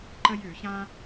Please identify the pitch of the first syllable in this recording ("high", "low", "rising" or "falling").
high